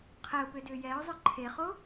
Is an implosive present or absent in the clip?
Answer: absent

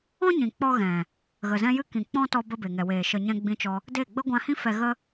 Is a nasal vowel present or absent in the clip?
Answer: present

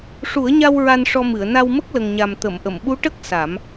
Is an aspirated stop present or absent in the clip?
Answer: absent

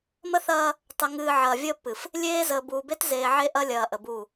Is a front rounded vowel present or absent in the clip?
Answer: absent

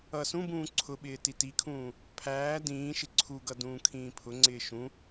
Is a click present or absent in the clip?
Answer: present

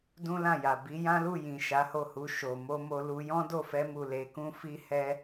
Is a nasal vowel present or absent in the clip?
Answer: present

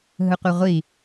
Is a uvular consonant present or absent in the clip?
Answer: present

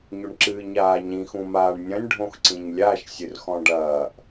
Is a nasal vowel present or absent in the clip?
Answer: present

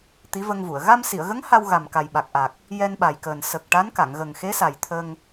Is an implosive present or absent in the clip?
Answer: present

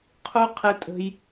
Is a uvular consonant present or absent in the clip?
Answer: present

